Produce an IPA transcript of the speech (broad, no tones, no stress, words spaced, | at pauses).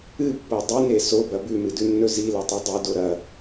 ɨpːo dˤɨne sobɐ bʉmɨdʉnːɵ zilɐtˤʉ dˤido ɾɐ